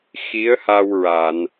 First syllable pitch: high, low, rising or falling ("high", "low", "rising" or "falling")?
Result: rising